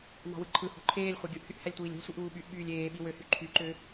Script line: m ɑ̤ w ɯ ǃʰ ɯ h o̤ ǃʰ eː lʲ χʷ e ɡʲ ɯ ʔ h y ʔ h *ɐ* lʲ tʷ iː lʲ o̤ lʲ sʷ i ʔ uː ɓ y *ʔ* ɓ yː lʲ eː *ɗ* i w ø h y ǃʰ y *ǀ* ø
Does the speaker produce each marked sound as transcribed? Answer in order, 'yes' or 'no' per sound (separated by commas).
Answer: no, yes, no, no